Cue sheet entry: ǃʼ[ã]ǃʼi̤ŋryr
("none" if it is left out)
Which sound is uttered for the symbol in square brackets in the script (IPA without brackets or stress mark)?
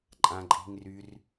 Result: ã